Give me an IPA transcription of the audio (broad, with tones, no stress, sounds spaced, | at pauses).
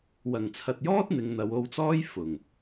w ɐ˨˩ ŋ t͡sʰ ɐ˨ t̚ j ɔː˥ t̚ n̪ ɪ˨˧ ŋ n̪ ɐ˨˧ w o˧ w t͡s ɔː˥ j f ʊ˨˩ ŋ